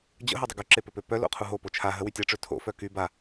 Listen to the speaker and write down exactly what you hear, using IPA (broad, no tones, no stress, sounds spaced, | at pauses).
d͡ʑ ə̰ ɦ o dˤ ə ɡ u ǁ e p œ p ø p œ l o̰ qʰ u ɦ o p o t͡ʃʰ a ɦ ə w y tʲ a ʈ͡ʂ ø tʰ o̰ f œ k y b a